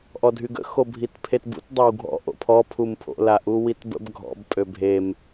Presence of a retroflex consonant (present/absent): absent